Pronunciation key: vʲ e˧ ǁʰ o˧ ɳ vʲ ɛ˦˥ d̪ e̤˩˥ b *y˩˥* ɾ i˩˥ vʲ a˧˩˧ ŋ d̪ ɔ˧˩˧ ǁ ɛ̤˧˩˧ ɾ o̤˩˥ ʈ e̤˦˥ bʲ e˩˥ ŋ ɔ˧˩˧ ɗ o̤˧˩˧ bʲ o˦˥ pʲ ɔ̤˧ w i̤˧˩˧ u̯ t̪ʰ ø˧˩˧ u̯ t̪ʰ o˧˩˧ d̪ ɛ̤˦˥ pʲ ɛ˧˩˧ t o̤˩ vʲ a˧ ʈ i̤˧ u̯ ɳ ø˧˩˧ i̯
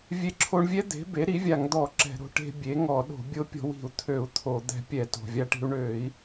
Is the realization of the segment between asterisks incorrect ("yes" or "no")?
yes